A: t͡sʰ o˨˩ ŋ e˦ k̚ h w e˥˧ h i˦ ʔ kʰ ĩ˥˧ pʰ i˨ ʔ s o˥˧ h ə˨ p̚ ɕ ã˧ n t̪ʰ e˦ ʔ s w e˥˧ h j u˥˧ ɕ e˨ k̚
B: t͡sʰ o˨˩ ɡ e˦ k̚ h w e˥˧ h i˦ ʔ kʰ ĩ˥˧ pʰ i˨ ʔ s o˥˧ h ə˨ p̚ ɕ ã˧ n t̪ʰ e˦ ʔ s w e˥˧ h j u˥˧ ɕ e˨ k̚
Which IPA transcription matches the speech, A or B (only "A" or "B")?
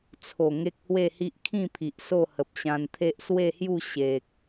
A